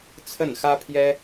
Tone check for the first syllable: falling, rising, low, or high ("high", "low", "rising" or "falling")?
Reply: falling